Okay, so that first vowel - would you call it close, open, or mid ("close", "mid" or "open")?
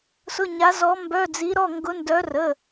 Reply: close